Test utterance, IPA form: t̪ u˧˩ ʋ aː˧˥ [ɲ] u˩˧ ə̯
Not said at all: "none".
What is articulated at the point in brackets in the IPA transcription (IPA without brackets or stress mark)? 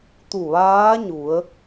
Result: ɲ